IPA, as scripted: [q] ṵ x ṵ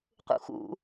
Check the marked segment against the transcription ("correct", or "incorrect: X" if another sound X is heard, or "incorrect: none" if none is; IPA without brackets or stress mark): correct